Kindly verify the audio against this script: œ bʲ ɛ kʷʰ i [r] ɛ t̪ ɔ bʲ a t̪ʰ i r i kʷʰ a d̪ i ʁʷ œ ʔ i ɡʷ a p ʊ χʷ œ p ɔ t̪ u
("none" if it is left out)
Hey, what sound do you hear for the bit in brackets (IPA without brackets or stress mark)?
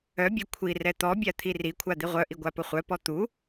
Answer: r